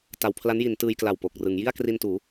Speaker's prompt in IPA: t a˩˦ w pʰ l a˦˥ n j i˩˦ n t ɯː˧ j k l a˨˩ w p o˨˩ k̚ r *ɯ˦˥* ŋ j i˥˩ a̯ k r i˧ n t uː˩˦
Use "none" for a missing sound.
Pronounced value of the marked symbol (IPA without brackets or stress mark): ɯ˩˦